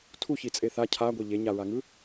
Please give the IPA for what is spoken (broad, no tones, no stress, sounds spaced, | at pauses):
tʰ u ç i t͡sʼ e θ a cʰ a ɡʷ e ʎ e ɲ a ɹ a ŋ ɯ